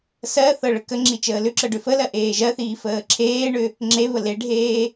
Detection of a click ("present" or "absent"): present